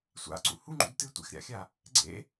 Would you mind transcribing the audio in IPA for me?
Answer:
sʷ a̰ ǀ ṵ h u ŋ͡ǃ ṵ d t ɨ tʷ ḛ x ɾʲ a̰ xʲ a | ɡ͡ǀ ḛ

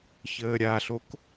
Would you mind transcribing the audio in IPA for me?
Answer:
ç əː ɾʲ a ɬ o k

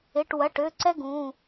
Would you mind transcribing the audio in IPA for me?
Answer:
ɪ˩˧˩ ʈ w ɐ˩˧˩ ʈ ø˩˧˩ ǀ ɛ˥ ɡ ũ˩˧˩

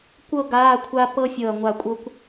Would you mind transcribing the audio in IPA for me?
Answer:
kʷ ɤ˥˧ ɡ aː˧˥˧ kʷʰ a˦˥ p ɤ˦˥ fʲ ɤ˧˩ ɐ̯ ŋʷ a˧˩ kʷʼ ɤ˧ kʷ

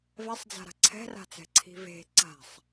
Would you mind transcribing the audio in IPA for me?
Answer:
v ɛ sˤ d͡z a̤ ɾ a̤ ǀʰ ɛ̤ r a̤ t͡s ɛ̤ ǀʰ i̤ v e̤ ǀ a̤ sˤ

